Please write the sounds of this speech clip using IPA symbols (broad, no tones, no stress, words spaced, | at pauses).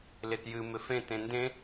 lɪtjɨ mɪfẽ tẽndẽ